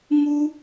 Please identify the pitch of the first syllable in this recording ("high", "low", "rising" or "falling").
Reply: high